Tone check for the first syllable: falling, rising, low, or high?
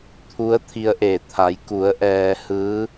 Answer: rising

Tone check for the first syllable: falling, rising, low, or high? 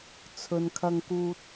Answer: low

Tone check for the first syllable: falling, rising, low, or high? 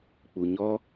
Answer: low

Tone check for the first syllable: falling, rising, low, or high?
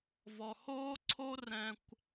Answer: low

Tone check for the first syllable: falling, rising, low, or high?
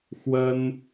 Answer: high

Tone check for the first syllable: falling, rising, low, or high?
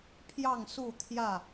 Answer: falling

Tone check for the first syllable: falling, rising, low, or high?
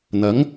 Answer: rising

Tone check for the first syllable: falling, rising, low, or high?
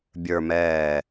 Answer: low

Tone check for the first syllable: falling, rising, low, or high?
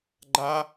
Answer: high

